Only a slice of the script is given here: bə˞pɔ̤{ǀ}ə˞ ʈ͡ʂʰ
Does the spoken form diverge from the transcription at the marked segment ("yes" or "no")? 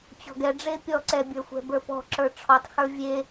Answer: yes